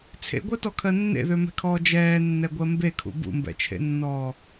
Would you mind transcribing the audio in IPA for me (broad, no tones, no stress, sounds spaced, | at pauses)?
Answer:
t͡sʰ ḛ ɡʷ ɜ t ɔ kʰ ɜ nː ḛ ð ø m ɛ̤ kʰ ɔː d͡ʒ ɛː nː ɛ ɡʷ ɜ m b e kʰ ṵ b ṵ m b ɛ̰ t͡ʃʰ ḛ nː ɔː